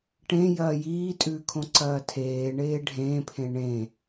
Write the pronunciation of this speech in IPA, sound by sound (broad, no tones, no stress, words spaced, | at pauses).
ʈẽjɐː jiːtʼʉːkʰõǀɐː tʰeːɳeː ɖʱẽːpʰẽ ɳẽ